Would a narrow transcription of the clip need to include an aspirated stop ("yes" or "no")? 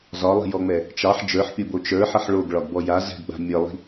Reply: no